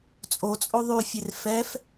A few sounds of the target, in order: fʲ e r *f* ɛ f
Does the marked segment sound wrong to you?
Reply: no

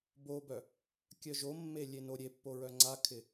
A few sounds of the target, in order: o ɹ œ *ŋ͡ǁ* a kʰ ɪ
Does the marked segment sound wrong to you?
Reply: yes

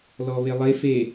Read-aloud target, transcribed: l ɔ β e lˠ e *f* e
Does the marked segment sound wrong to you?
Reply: no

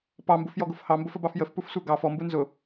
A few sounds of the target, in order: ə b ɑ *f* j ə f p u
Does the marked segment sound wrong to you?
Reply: no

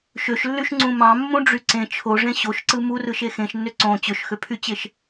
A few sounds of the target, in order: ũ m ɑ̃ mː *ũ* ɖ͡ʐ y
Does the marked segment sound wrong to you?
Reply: no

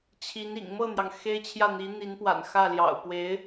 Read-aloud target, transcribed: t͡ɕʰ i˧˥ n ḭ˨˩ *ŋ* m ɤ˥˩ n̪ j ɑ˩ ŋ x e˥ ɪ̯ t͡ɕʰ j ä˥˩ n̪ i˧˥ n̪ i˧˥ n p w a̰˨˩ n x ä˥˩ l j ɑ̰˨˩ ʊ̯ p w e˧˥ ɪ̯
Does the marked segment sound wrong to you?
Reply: no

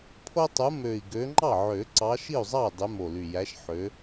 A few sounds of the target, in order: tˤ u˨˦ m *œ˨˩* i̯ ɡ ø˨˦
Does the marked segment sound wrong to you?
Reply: yes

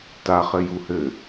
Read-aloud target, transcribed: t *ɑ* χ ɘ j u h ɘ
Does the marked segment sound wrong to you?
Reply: yes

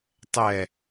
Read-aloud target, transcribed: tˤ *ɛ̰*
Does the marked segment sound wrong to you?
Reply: yes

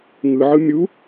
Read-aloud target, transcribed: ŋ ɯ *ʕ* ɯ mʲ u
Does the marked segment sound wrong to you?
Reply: no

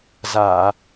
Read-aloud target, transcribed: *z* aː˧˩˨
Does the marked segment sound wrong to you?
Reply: no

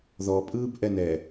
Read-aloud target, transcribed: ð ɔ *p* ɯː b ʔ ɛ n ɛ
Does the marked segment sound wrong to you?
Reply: yes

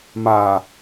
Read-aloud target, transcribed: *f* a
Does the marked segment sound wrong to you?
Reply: yes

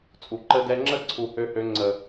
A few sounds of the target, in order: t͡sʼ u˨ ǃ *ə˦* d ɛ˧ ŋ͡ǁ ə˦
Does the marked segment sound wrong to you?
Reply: yes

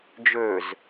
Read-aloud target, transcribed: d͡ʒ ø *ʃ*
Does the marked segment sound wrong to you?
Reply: yes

